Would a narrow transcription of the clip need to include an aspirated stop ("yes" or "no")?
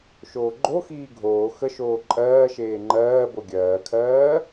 yes